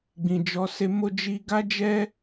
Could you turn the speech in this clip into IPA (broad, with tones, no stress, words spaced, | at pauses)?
ɡ͡bĩ˨d͡ʒɔ˨˦ se˧mo˦ d͡ʒi˧ɡa˦d͡ʒɛ˦